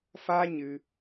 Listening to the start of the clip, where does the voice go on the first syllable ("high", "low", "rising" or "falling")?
high